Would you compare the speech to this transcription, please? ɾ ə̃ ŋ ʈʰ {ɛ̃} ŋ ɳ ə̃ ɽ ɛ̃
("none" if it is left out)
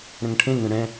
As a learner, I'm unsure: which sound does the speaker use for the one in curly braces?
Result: ẽ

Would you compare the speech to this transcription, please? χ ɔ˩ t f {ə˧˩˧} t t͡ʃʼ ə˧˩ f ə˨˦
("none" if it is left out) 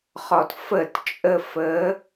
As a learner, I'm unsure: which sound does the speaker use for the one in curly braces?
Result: ə˧˩˧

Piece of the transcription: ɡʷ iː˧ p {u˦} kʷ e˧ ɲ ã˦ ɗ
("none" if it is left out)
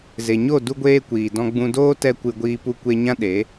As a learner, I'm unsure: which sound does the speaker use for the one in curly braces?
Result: u˧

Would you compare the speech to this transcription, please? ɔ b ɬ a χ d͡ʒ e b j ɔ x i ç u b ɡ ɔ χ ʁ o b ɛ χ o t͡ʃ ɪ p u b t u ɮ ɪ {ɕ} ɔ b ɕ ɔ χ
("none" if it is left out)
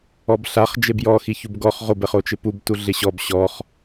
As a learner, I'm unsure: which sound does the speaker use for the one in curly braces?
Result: ɕ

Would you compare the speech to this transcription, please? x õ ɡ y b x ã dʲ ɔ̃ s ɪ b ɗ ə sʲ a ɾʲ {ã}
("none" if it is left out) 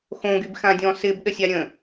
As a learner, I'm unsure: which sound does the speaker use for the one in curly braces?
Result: ə̃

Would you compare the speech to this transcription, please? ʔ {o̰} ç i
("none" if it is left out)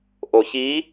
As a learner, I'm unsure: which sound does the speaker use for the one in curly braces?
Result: o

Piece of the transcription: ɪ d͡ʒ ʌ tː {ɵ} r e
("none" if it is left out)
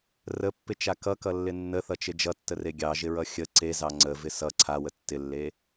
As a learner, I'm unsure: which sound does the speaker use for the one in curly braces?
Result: ə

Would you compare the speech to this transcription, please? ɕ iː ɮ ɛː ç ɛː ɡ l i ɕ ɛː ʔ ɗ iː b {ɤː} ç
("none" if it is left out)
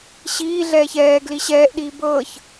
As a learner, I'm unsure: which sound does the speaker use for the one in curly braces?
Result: ɤː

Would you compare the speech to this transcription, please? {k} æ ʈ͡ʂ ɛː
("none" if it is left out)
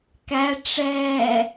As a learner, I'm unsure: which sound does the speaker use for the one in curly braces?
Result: k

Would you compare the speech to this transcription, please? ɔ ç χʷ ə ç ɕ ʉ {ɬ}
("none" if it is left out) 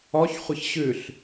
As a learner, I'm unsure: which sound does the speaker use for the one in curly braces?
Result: ɬ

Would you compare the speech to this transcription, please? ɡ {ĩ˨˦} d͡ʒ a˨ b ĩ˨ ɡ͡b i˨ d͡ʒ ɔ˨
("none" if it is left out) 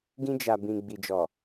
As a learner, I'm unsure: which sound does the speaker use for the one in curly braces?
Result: ĩ˧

